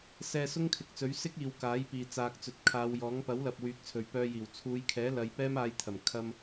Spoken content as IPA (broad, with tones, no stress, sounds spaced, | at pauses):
s ɛː˧ s ʊ˥ ŋ kʰ ɪ˨ k̚ t͡s ɵ˨˥ ɥ s ɪ˥ k̚ iː˨ w k aː˨˥ j p iː˨ t͡s aː˨ k̚ t͡s ɵ˨ t̚ kʰ aː˨˧ w j ɔː˨˥ ŋ p ɐ˨˥ w l ɐ˨ p̚ w yː˨˥ k̚ t͡sʰ ɵ˨ ɥ p œː˧ j iː˨˩ w t͡sʰ uː˨˧ j kʰ ɛː˨˥ l ɐ˧ j p ɛː˥ m aː˧ j t̪ʰ ɐ˨˩ m kʰ ɐ˧ m